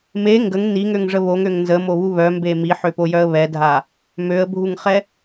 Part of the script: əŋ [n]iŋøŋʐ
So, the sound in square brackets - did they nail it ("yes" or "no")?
yes